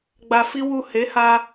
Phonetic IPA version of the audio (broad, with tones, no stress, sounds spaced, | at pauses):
ɡ͡b a˧ f i˦ w u˦˨ h e˨˦ h a˧